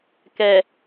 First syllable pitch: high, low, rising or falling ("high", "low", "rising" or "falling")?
low